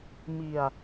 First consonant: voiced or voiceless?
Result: voiced